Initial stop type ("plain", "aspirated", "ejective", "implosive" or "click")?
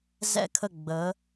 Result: aspirated